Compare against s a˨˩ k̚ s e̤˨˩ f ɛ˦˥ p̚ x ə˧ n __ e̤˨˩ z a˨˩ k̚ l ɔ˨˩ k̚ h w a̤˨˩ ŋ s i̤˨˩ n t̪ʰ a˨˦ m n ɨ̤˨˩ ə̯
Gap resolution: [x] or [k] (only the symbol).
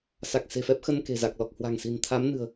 k